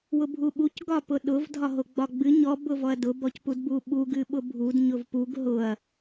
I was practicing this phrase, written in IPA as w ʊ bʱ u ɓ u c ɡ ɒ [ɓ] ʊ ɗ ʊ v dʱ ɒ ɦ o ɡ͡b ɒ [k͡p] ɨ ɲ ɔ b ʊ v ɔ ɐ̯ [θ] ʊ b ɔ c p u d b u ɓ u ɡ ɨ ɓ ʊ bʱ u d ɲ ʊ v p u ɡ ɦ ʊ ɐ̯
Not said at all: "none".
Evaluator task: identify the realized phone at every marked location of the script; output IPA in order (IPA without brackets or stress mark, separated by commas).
p, ɡ͡b, d